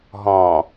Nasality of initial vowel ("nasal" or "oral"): nasal